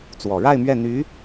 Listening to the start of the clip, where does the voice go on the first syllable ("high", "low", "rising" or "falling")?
low